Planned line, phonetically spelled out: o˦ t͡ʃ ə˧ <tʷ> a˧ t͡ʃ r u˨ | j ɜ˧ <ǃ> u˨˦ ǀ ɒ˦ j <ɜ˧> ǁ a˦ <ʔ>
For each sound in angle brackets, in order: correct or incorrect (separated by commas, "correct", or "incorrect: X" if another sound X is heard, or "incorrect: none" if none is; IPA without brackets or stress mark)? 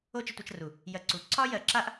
correct, incorrect: ǀ, correct, correct